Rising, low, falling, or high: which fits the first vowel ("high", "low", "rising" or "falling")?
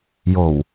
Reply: low